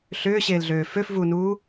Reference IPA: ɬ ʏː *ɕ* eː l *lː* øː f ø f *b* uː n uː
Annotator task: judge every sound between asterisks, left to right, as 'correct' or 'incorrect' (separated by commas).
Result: correct, incorrect, incorrect